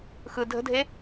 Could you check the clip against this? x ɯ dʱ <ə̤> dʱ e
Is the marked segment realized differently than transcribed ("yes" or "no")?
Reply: no